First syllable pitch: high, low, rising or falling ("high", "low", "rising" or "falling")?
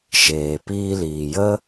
low